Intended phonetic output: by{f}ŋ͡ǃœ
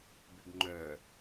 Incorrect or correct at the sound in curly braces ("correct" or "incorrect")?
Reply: incorrect